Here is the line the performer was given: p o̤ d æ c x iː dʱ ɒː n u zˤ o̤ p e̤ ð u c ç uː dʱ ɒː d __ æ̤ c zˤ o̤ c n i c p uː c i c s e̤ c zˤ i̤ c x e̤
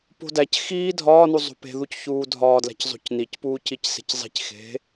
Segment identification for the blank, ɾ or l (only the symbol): l